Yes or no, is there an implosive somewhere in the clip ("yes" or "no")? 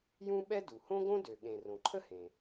yes